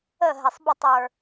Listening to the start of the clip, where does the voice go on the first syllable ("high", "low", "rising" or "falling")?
falling